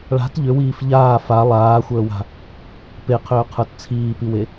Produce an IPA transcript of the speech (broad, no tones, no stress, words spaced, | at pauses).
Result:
ɭa̤t ʎʏwiːf ʎaː fa lˠaːxʷəːwa̤ | peqʰʏːqʰə˞t t͡sʰiːpiwe